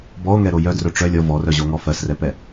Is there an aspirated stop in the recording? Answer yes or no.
no